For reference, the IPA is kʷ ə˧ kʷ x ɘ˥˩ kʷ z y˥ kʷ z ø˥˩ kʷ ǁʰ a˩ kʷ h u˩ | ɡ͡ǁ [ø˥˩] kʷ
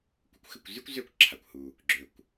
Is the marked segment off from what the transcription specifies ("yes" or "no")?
yes